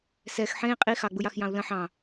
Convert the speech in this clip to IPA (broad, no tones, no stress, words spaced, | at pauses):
sɛx ħẽi̯ qʼi xɑɡ͡buj ɑxjɑ̃u̯lə̃ ħɑ̃